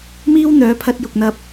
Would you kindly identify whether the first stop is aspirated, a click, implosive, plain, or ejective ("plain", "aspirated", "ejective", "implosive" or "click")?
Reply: aspirated